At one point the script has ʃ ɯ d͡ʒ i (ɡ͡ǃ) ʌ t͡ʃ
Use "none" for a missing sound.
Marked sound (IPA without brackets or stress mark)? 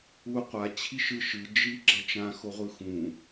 ɡ͡ǁ